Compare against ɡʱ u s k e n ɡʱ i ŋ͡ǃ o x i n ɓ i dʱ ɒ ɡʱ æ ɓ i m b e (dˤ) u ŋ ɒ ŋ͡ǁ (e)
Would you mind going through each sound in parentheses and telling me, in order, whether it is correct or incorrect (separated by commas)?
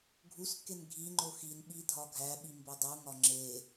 correct, correct